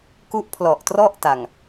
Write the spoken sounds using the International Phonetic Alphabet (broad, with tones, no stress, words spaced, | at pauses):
ku˦˥ʔpʰlɔ˨˩ʔtrɔ˥˩ʔ ta˨˩ŋ